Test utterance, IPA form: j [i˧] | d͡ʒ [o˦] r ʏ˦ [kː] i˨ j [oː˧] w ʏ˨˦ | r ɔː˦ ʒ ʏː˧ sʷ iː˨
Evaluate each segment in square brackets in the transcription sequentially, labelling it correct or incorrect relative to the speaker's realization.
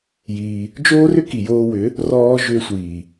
incorrect: iː˧, incorrect: oː˦, incorrect: k, correct

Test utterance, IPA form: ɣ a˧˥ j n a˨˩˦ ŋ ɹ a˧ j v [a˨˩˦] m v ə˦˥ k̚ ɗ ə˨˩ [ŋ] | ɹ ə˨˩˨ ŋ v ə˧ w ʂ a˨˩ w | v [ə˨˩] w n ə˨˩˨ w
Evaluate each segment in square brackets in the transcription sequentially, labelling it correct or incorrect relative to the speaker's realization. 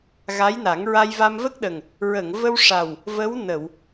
incorrect: a˧, correct, incorrect: ə˧˥

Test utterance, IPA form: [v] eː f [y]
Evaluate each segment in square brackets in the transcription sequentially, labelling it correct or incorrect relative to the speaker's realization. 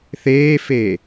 incorrect: θ, incorrect: e

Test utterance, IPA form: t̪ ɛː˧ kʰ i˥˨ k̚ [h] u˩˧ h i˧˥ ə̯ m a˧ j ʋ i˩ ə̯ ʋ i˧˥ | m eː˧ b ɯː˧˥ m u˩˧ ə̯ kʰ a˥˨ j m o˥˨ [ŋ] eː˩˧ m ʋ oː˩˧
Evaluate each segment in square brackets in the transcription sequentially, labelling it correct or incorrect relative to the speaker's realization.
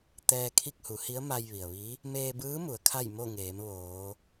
correct, correct

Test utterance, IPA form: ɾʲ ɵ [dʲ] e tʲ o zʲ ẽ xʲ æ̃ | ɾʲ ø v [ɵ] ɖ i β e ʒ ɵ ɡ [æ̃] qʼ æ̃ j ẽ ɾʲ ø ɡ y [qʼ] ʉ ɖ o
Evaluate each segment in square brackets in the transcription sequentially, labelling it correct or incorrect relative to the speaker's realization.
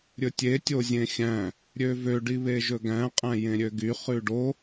incorrect: tʲ, incorrect: ø, correct, incorrect: χ

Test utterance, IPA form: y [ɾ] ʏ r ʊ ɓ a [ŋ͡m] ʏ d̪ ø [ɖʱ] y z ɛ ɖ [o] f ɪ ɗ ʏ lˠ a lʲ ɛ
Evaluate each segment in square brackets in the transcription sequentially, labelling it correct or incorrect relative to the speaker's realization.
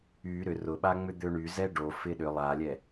correct, correct, incorrect: ɳ, correct

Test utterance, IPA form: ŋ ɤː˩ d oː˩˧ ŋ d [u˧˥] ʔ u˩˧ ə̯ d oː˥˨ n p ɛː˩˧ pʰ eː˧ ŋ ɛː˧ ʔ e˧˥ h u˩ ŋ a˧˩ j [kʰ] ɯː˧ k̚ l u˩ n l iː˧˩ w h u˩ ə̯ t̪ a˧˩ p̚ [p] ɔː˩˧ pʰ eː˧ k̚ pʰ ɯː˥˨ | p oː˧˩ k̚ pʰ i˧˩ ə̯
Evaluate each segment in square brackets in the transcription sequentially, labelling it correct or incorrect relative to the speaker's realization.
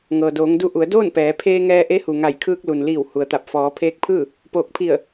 incorrect: u˧, correct, incorrect: f

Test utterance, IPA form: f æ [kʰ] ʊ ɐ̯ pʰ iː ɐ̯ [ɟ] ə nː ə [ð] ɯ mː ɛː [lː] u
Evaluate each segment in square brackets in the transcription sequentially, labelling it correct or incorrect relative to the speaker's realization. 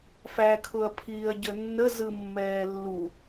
correct, correct, incorrect: z, correct

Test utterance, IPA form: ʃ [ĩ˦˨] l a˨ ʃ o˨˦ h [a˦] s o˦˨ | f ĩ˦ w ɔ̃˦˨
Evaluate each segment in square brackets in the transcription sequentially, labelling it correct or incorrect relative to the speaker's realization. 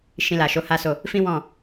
incorrect: ĩ˧, correct

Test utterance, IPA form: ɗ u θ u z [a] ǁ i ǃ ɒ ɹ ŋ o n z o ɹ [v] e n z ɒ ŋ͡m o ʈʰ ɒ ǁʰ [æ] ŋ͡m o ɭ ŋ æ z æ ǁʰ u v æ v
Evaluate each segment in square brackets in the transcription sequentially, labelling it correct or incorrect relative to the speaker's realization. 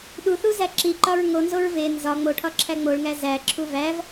incorrect: æ, correct, correct

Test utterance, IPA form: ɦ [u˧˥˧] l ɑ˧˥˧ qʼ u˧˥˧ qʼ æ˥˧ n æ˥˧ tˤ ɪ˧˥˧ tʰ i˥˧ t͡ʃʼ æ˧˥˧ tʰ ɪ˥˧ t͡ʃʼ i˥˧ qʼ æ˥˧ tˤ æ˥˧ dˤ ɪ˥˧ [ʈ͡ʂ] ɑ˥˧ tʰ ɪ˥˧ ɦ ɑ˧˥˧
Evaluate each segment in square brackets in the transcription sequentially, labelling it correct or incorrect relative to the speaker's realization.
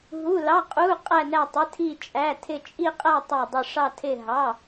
correct, incorrect: ʂ

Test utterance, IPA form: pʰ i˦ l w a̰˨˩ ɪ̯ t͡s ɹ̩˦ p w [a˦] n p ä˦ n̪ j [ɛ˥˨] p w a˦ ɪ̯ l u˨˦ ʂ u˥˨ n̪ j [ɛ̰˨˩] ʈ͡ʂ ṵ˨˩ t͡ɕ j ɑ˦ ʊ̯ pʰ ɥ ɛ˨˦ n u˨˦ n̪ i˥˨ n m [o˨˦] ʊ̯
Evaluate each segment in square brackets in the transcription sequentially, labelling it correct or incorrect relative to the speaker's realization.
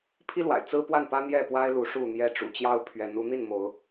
incorrect: a˥˨, correct, incorrect: ɛ˦, correct

